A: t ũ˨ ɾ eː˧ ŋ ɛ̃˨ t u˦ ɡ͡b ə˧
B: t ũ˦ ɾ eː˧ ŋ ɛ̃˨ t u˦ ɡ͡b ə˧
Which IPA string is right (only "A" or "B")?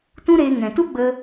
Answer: B